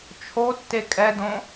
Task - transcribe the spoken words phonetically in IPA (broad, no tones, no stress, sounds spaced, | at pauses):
t͡ʃʰ o tː e kʼ ɛ d õ